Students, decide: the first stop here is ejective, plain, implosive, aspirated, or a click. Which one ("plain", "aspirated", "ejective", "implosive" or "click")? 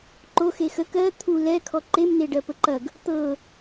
click